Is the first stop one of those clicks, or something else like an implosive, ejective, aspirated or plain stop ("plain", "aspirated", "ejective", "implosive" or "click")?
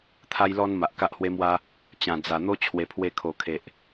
aspirated